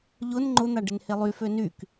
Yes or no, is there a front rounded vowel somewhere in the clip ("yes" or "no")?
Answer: yes